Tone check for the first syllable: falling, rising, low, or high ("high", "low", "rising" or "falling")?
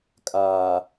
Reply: low